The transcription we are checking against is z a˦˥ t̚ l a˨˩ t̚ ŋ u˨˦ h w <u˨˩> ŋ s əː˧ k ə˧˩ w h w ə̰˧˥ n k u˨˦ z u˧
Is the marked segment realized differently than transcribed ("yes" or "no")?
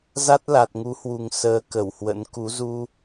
no